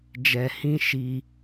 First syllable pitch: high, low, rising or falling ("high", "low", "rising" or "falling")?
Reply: low